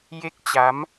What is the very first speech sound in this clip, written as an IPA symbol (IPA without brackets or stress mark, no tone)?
j